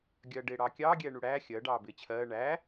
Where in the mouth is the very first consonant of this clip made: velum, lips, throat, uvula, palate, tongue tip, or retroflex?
velum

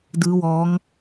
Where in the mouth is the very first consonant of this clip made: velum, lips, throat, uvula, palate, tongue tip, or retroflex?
tongue tip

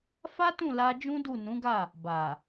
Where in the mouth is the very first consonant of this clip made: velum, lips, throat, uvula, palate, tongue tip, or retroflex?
lips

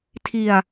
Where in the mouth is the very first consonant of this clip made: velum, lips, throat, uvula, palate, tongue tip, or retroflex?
tongue tip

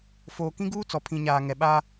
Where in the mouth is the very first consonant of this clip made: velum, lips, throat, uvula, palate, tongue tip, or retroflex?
lips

